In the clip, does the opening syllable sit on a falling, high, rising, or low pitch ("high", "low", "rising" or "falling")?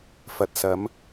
low